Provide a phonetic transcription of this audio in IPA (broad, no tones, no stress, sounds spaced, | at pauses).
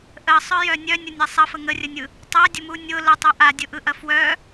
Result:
ʔ ə sˤ œ j œ nʲ œ nʲ ʊ nʲ e sˤ ɐ f ə ŋ ə rʲ ə nʲ ɯ | tˤ a dʲ ə m u nʲ ʊ l ə tˤ œ ʔ a dʲ ʊ ʔ ɯ ʔ ɐ f w œ